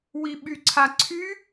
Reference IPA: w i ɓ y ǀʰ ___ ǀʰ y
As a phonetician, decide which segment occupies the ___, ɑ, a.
a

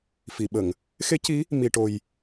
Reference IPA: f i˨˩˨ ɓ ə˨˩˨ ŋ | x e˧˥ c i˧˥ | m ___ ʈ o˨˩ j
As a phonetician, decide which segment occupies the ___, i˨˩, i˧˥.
i˨˩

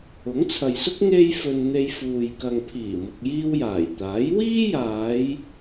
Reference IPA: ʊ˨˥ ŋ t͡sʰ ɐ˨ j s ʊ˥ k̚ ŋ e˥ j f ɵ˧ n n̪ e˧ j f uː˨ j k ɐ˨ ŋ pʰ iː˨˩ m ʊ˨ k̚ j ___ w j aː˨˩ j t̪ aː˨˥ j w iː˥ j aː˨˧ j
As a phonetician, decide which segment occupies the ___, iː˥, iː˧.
iː˧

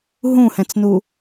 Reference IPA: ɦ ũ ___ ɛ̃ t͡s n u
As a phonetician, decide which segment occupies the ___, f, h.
h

